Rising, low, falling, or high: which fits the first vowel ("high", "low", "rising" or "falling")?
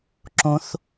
high